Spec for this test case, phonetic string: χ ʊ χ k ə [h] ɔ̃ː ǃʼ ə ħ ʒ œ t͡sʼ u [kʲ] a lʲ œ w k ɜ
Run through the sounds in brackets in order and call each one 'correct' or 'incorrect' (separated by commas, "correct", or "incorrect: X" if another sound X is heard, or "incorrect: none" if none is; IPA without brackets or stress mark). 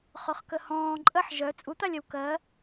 correct, incorrect: t̪